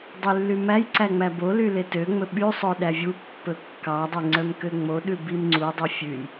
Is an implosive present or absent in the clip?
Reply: present